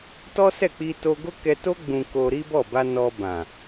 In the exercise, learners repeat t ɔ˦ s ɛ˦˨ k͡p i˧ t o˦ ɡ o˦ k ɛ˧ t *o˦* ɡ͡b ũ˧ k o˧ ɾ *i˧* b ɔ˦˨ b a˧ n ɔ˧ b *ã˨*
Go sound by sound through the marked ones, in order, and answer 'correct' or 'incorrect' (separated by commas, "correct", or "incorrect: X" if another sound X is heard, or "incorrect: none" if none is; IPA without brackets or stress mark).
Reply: correct, incorrect: i˦, correct